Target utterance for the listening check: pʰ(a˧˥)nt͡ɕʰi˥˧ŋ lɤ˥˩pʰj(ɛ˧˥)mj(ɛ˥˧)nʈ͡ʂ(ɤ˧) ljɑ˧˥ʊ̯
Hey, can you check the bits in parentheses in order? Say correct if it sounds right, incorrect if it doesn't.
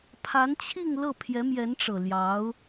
correct, correct, incorrect: ɛ˧˥, incorrect: ɤ˨˩

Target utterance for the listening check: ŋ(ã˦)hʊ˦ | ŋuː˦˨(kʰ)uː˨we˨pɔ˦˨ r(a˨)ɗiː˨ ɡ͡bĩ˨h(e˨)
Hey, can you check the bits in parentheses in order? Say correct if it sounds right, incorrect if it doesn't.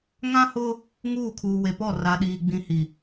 correct, correct, correct, incorrect: i˨

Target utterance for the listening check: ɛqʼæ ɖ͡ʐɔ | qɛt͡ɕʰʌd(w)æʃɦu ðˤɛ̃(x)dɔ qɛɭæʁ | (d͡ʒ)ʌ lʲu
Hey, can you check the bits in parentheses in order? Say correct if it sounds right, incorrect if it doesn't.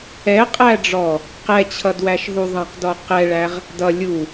correct, incorrect: q, incorrect: d

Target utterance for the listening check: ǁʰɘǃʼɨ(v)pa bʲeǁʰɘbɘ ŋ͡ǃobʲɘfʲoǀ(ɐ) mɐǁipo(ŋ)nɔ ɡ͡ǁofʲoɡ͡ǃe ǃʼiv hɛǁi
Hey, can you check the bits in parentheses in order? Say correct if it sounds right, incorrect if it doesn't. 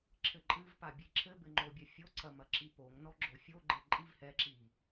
correct, correct, correct

